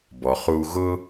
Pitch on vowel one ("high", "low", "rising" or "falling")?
low